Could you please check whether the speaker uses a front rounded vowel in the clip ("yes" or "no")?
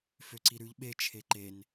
yes